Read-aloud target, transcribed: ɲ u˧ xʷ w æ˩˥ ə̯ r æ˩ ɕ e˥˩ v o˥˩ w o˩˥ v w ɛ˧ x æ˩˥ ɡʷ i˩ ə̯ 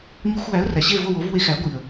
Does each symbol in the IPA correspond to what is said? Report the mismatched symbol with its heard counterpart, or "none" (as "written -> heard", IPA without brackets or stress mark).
ɛ˧ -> e˧